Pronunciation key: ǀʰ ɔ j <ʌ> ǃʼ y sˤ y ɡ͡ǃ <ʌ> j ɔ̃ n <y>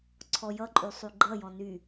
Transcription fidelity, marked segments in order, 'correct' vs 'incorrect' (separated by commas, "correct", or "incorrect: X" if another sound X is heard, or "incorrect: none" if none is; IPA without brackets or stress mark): correct, correct, correct